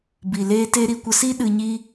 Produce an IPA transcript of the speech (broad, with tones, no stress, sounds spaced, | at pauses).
b i˨ l eː˦ t e˦ ɾ i˧ kʷ ə˧ s i˦ ɗ ɨ˧ ɲ i˦